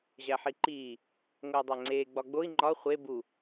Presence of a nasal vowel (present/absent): absent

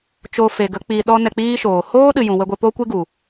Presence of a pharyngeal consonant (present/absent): absent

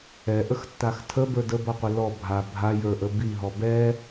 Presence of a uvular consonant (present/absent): present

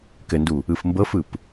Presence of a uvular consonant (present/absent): absent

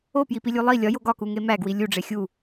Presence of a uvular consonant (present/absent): absent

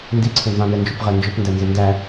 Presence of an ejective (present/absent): absent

